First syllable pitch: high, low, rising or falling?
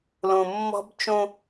low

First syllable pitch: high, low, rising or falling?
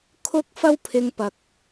high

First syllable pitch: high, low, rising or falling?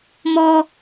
high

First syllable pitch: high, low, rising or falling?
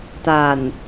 low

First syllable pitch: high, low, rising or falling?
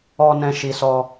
low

